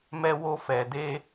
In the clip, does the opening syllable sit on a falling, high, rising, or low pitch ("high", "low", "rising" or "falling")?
high